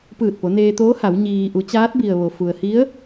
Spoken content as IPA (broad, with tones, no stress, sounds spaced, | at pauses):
p ɯː˧˩ t̚ p o˩˧ n eː˧ t̪ oː˧˥ h a˩˧ w ɲ iː˧ ʔ u˩˧ t͡ɕ aː˧˥ t̚ b i˩ ə̯ ʋ o˩ f u˩ ə̯ h i˧˥ ə̯